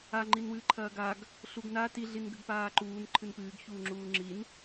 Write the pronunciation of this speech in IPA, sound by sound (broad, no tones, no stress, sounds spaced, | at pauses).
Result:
a ŋ͡ǃ i n w ɨː ǃʰ ɐː ɡ a ɡ | ɬ u ɡ n a t i ɮ i n ɡ ɘ ɡ p aː ǃ uː n ǃʰ ɨ n p ɨː ɡ ç uː ŋ͡ǁ uː ŋ͡ǁ i n